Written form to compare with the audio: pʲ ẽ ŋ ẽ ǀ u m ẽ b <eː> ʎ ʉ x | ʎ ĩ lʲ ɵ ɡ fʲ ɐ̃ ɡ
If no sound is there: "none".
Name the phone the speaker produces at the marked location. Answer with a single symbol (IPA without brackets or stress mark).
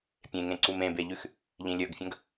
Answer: e